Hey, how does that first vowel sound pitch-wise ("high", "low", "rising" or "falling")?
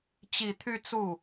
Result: low